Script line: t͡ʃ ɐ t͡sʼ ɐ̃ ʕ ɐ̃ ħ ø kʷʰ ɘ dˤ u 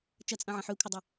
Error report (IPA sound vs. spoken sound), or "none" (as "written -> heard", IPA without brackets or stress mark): u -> ø